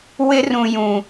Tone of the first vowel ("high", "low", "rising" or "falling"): high